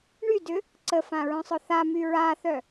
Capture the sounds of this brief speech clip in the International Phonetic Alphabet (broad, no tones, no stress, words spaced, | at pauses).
ɳydʏ | ǀəfãɹœ̃sˤʊ θamy ɹaθœ